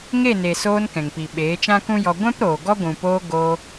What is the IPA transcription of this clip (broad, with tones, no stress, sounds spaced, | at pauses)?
ŋ e˦˨ n e˨ s oː˧ n k ɛ̃˨ ŋ p i˨ ɓ eː˨˦ t͡ʃ ã˦ k ũ˦ j ɔ˧ ɡʷ ɛ̃˦ p ɾ oː˨ ɡ ɔ˦ ɡʷ ũ˨ p oː˧ ɡ oː˧